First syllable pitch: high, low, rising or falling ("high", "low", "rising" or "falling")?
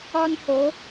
high